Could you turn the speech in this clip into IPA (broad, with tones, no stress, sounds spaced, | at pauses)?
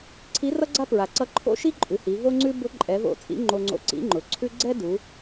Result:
ǀʰ i˧˥ r ʌ˥ ɡ͡ǀ a˥ p ɹ a˩ ǀ ʌ˧ ǃʰ o̰˥ ʃ i˥ ǃʼ ʉ˩˧ h i˩˧ v o˥ ŋ͡ǀ ʉ˥ b ʊ˧˥ ǃʼ ɛ˩˧ v o̰˧ t͡sʼ ḭ˧˥ ŋ͡ǃ o˧ ŋ͡ǀ o̰˧ ǀ ḭ˧˥ ŋ͡ǃ ʊ˩˧ ǀʰ ʉ˥ ɡ͡ǀ ɛ˥ d u˩˧